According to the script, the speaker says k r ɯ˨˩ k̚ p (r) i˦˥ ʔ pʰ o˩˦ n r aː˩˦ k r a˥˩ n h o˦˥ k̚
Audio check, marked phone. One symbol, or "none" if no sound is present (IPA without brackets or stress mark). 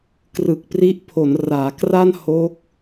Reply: r